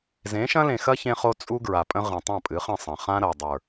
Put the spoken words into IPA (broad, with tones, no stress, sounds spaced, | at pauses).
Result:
z ẽ˨˦ ʃ ɐ̃˦ l ẽ˨ x ɐ˦ ç ẽ˦ χ o˦ t͡sʼ u˦ ɡ ɹ a˨ pʼ ə̃˦ ʁ ə̃˨ tˤ ɐ̃˦˨ pʼ ɨ˨˦ χ ə̃˦˨ sˤ ɐ̃˨ χ ã˦ ɾ ɐ˨ dˤ ə˞˨